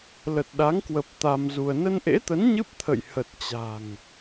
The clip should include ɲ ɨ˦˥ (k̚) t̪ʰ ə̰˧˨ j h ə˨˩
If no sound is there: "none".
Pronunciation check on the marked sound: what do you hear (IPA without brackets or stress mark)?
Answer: p̚